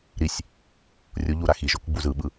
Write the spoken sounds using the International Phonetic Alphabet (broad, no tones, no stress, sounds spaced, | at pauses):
ɾ i sʲ | rʲ o ʎ u ɾ a x i ʒ o k ɡ͡b u z ɯ ɓ ɯ